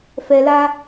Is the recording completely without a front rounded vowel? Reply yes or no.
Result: yes